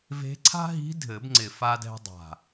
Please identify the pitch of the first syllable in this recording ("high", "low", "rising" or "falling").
rising